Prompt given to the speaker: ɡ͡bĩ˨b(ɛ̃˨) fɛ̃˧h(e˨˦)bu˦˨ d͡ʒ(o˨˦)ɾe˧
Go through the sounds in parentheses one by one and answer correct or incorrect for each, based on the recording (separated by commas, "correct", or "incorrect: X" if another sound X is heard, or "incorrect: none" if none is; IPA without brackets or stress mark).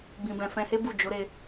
correct, incorrect: e˦, correct